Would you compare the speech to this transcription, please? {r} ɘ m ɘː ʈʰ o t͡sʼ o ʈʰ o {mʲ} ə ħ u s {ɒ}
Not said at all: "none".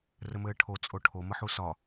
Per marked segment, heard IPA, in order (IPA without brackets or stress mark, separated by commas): r, m, ɒ